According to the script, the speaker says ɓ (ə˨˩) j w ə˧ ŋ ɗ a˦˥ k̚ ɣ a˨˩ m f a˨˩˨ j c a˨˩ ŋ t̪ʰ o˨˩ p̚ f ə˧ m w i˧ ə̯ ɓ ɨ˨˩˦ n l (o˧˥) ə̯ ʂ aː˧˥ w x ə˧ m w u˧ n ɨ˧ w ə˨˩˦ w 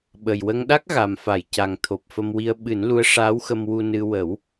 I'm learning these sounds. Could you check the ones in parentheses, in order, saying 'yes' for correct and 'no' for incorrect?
yes, no

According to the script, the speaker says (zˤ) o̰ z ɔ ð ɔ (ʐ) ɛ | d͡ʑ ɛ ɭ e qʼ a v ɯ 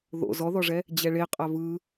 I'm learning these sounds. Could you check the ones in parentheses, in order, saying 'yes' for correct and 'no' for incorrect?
no, yes

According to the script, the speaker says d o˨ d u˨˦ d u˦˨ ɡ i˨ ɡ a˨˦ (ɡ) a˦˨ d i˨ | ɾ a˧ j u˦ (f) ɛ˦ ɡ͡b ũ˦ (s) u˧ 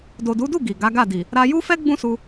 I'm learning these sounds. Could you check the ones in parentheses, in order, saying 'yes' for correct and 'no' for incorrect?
yes, yes, yes

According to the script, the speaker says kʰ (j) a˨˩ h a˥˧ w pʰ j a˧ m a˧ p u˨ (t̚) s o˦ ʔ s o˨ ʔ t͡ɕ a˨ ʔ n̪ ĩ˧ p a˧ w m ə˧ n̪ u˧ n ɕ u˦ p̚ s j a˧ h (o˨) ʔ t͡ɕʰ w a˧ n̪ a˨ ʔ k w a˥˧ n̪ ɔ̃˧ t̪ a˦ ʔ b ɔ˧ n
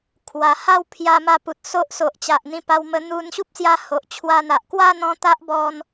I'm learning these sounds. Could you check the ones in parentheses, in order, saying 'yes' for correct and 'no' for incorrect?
no, yes, yes

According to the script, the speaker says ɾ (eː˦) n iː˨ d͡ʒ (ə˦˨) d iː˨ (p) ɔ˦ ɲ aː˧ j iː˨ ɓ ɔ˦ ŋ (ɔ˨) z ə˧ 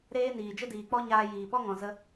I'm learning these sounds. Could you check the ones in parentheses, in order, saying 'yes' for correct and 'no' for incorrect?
yes, no, no, no

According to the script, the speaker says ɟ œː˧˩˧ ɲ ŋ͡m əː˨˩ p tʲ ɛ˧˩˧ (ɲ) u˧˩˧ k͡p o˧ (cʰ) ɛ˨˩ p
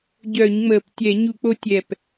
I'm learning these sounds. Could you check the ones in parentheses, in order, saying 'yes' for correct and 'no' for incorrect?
yes, no

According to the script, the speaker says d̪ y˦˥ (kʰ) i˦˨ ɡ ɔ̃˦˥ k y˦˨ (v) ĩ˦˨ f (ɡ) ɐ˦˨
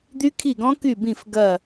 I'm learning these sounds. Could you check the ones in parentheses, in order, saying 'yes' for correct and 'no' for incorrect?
yes, no, yes

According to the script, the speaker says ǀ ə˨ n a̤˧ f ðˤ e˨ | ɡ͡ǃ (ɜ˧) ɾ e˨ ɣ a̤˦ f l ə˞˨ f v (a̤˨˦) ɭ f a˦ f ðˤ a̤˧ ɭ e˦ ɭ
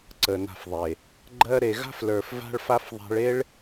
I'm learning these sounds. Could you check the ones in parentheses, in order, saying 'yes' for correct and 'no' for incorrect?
yes, no

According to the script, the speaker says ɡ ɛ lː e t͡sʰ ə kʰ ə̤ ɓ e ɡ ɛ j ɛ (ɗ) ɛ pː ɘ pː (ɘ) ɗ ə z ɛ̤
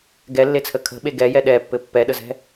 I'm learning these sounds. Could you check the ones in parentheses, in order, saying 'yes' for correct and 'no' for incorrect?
yes, no

